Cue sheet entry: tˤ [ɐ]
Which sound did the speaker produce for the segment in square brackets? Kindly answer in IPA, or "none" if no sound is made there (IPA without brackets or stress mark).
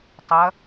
ɐ